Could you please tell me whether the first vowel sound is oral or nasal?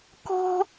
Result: oral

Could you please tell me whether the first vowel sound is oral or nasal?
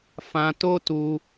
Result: nasal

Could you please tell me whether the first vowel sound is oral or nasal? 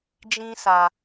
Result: nasal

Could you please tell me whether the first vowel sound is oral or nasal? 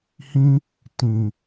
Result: nasal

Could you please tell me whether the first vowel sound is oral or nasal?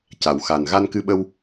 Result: oral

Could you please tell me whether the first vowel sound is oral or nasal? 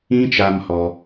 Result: nasal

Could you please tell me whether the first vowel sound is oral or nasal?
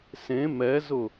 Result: nasal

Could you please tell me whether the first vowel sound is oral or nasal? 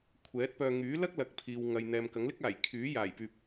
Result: oral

